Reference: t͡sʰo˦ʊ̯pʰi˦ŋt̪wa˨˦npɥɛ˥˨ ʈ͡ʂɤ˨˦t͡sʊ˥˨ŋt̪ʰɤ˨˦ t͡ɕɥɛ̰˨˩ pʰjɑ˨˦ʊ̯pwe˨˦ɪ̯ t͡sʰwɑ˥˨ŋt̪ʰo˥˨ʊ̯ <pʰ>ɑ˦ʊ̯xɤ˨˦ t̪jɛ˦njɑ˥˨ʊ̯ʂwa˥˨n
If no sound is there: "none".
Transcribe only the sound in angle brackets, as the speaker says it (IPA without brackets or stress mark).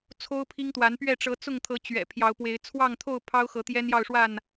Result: pʰ